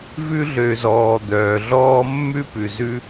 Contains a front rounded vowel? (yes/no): yes